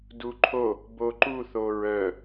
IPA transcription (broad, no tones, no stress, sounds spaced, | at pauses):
d u ǃʰ o | b o ǃ u θ o ɹ œ